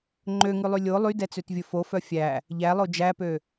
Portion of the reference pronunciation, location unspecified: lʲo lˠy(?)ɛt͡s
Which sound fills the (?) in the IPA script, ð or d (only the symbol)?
d